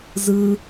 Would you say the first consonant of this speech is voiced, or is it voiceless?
voiced